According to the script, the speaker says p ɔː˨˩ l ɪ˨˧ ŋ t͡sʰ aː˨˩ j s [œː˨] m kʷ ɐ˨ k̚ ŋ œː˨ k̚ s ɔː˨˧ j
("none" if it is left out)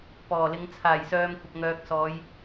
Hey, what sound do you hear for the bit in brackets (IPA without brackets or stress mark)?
œː˨